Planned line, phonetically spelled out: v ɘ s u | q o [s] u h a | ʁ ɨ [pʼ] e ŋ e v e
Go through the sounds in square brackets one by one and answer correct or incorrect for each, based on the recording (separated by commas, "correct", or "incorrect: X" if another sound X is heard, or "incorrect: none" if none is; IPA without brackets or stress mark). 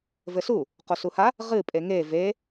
correct, correct